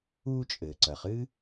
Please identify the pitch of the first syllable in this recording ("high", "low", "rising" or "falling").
high